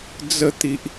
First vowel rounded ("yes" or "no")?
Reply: no